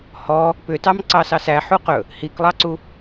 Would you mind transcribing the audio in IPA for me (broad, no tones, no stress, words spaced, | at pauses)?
hɔ | pʏtɑm ǀɑsɑsæ ħuqɵ | hiklˠɑǀu